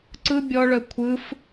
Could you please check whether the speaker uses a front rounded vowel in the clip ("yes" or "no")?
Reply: yes